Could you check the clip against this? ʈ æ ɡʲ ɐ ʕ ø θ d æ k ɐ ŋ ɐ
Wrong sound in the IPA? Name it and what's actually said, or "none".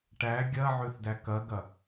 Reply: ŋ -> ɡ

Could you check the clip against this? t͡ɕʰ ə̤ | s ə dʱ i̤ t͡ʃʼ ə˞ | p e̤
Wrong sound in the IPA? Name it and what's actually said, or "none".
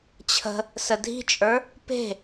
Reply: none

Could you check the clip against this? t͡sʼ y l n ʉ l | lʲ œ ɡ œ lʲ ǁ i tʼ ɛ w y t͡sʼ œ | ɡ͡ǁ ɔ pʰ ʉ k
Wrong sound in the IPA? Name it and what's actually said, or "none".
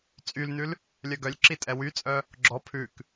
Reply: none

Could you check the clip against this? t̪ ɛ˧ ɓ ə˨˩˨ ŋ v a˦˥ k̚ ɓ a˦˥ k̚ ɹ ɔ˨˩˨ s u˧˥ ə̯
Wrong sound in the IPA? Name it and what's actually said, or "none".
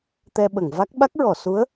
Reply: none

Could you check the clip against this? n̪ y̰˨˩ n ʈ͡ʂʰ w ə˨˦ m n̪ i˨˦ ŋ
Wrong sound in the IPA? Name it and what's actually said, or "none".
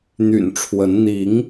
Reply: m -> n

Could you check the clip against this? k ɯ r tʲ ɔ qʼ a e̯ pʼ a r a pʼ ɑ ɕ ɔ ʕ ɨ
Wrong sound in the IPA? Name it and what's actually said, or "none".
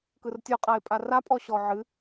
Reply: ɑ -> ɔ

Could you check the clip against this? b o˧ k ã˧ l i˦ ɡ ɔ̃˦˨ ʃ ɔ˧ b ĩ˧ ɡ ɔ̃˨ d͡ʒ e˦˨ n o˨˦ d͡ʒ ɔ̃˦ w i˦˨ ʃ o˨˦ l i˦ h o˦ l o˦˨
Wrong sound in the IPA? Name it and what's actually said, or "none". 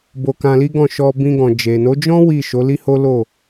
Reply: e˦˨ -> e˨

